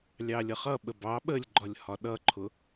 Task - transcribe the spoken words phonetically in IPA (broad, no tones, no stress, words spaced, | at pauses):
lʲɑlʲʌχʌ ɓəbɑ ɓəlʲɡ͡ǃɒlʲ hɒɗʌǃʰʊ